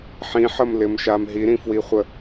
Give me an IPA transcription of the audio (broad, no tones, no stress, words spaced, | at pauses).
ħĩħəmlɪmʃam ɦiɾĩfwiχʷə